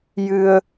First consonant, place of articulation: palatal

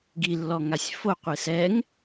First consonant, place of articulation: velar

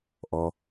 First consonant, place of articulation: glottal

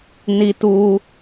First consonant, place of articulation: alveolar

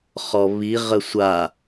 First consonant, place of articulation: uvular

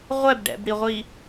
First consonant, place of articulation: uvular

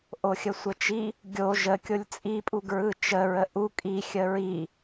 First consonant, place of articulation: glottal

